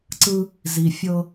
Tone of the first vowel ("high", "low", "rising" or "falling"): high